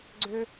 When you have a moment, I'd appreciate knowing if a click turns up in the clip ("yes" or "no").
yes